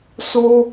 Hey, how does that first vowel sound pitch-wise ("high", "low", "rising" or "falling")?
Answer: high